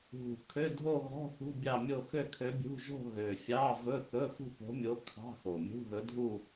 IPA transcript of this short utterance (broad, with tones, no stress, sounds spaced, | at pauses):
ɦ ṳ˨˩ kʰ ø˧˥˧ dʱ o˥˧ ɣ ɔ̤˧˥˧ θ ṳ˧˥˧ bʲ ɑ˥˧ mʲ o˥˧ x ø˥˧ kʰ ø˧˥ bʲ ṳ˧˥˧ ʒ o̤˥˧ ɣ ø˨˩ fʲ ɑ˧˥˧ v ɵ˧˥˧ θ ɵ˧˥˧ f ṳ˥˧ p o̤˧˥ mʲ o˧˥ kʰ ɑ̤˧˥˧ x o˨˩ mʲ ṳ˧˥˧ ð ɵ˧˥ dʱ u˥˧